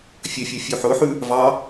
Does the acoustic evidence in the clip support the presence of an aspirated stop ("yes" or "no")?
no